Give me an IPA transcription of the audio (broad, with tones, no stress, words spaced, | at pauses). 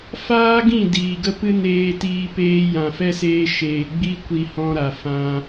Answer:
faː˦ɡĩ˦˨ diː˨ɡə˦pɨ˦ neː˧tiː˧ peː˧jã˨fɛ˦seː˧ ʃeː˨ ɡ͡bi˦kʷi˧hɔ̃˧ ɾa˨ fã˧